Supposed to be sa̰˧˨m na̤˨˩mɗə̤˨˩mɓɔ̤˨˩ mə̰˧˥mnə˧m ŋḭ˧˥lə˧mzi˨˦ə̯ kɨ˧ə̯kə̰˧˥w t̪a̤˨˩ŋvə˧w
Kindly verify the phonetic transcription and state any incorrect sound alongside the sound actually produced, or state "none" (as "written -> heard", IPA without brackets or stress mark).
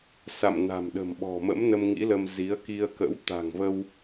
ɨ˧ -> i˧